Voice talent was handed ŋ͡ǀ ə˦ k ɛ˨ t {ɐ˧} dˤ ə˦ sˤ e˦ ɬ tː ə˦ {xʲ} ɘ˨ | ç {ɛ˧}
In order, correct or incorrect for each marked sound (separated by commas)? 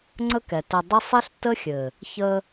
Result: correct, correct, incorrect